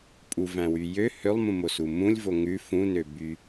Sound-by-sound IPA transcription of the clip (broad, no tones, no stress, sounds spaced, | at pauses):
pʼ u v æ̃ w y j ø h ø lˠ m ũ m o s u m ũ lʲ v o ŋ ʉ f ũ n ø b y